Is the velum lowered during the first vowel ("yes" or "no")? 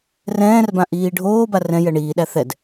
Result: yes